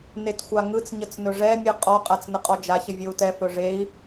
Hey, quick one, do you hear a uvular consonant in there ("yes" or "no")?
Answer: yes